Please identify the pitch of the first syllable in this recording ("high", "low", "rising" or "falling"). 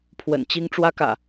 low